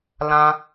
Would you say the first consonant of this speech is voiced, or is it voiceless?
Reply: voiced